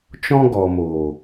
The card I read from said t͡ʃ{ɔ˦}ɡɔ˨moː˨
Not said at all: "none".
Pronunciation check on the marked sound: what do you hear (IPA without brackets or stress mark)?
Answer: ɔ̃˦